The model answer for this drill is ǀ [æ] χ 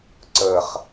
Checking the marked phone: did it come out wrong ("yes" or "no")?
yes